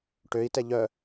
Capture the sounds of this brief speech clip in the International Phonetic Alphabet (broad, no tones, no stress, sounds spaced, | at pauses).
ʈ ø i̯ t ɛ ʎ œ